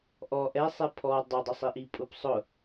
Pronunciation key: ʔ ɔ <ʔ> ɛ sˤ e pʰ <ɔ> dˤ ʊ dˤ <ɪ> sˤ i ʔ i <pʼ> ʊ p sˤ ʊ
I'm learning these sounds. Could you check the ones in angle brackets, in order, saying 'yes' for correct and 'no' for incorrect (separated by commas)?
yes, yes, yes, yes